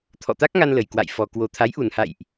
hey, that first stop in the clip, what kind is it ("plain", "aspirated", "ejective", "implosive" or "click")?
aspirated